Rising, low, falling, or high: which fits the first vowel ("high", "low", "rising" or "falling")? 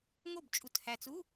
falling